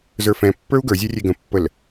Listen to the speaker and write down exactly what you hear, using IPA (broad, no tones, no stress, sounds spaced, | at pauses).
z ə˞ f ɛ̃ pː ə˞ u̯ ɡ ə˞ zʲ ɛ rʲ e ɡ ə̃ pː ə l